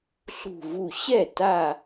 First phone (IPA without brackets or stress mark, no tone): ɬ